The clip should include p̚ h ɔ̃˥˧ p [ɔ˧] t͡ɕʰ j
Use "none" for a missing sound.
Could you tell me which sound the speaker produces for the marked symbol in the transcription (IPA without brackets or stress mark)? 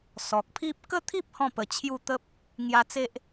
ə˧